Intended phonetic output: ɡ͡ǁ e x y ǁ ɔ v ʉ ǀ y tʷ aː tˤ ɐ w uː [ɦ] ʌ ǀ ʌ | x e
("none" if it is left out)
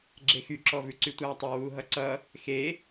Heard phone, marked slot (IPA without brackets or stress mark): ɦ